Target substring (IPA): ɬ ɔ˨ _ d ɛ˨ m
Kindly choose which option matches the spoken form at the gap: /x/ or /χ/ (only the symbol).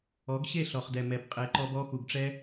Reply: χ